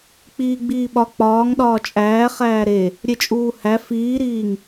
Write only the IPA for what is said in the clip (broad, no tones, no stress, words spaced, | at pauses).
k͡piːɡ͡biːɓɒ k͡pɒːŋ ɗɒːt͡ʃʼæːχæː ɾe | ɾʲet͡ʃʼuːhæ fiːɾiːŋ